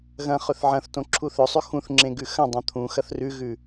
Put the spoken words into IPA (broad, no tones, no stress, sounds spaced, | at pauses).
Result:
ɣ ɐ̃ χ ɵ θ ʕ ɐ̃ θ t õ ǁʰ u θ ɵ sˤ ʉ x ũ θ ŋ͡ǁ ẽ ɡ ʉ x ɐ̃ dˤ ɐ̃ t̪ʰ ũ x ɐ θ r ʉ ɣ ʉ